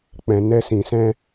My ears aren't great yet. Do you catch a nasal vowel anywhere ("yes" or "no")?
yes